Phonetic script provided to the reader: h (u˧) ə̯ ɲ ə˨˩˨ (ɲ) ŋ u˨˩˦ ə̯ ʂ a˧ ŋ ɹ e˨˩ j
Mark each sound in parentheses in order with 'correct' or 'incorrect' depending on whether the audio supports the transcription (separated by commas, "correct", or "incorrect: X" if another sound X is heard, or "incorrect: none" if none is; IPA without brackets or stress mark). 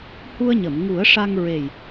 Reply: correct, incorrect: m